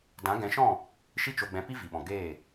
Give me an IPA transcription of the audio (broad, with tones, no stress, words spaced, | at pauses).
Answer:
dã˨˦ɡɛ̃˨˦ʃɔ̃˦˨ | ʃi˦t͡ʃo˧ɡ͡bɛ̃˧pi˦ vi˨ɓɔ̃˨ ɡeː˦˨